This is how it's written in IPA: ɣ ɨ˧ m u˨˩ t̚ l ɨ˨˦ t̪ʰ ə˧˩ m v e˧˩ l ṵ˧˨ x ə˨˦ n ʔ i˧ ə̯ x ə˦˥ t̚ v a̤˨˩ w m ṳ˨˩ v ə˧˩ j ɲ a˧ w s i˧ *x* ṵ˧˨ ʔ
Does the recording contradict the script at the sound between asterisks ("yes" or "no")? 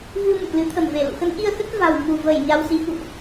no